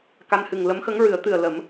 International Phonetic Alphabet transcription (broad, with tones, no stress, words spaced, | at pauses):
ka˧nhɨ˨˩ŋ lə˧˥mxə˧˥ŋɹɨ˨˩˦ə̯t̪ɨ˨˩ə̯ lə˨˩˦m